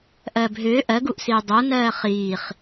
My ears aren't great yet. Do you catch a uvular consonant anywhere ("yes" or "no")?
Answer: yes